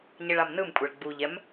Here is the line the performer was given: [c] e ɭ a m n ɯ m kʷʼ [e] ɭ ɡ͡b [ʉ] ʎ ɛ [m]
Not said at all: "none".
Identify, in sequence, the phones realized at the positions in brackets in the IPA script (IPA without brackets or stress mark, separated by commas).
ɲ, e, u, m